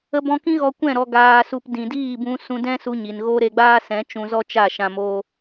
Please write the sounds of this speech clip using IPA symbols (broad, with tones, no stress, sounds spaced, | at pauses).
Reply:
ə˧ b ɔ̃˧ k ĩ˦ ɣ ɔ˧ kʷ ɛ̃˦˨ ɾ ɔ˨ ɡ aː˨ s u˨ p d ĩ˨ d iː˦˨ b ũ˧ s ũ˧ d ɛ̃˦ s u˧ ɲ i˨ n ɣ o˦ ɾ e˧ ɡ͡b aː˦ s ɛ̃˨˦ t͡ʃ ũ˧ z ɔ˦ t͡ʃ a˦˨ ʃ ã˧ m o˦